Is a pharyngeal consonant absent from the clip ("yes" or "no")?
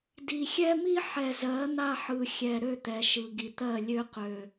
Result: no